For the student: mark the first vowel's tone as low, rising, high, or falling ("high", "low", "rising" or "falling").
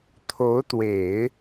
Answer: rising